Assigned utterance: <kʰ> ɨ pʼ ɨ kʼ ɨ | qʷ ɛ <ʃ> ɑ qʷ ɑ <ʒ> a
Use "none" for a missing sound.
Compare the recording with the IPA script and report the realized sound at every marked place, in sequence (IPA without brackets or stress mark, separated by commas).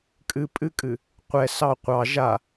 kʼ, s, ʒ